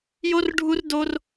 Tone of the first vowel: high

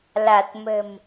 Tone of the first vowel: low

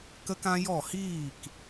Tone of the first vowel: high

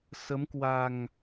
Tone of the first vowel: rising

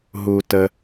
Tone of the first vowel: low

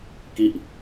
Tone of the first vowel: falling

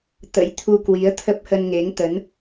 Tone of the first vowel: rising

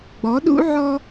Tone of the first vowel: rising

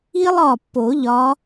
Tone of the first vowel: high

